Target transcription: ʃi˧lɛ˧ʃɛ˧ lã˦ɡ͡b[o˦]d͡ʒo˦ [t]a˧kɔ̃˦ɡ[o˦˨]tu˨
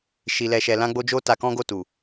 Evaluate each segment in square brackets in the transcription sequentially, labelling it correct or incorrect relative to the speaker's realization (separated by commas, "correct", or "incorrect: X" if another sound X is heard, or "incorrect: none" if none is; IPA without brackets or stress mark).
correct, correct, correct